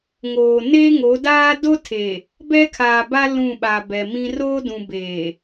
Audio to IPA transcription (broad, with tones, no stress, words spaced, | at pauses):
ŋoː˨ neː˦ŋo˨˦daː˦ do˦tʰeː˨ | bɛ˦kʰaː˨ba˦ lũ˦˨ɓa˨bɛ˨mĩ˦ ro˦dũ˨ beː˨